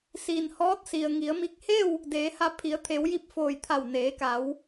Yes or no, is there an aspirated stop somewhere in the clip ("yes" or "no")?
yes